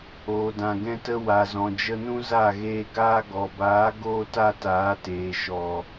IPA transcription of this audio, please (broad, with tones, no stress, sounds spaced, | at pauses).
oː˨ d ã˨ ɡ ɛ̃˧ t ə˧ w a˨ z ɔ̃˨ d͡ʒ ə˧ n ũ˦ z a˦˨ ɣ eː˧ ɡ aː˧ ɡ ɔ˨ b aː˨˦ ɡ oː˦ t a˦ t aː˨˦ t eː˨ ʃ ɔ˨